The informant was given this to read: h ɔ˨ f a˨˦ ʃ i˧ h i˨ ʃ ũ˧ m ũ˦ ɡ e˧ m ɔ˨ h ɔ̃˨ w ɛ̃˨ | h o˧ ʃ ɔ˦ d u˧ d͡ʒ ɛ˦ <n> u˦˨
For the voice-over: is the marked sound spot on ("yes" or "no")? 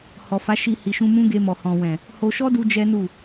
yes